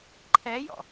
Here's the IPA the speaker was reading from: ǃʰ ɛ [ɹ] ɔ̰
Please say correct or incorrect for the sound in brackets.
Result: incorrect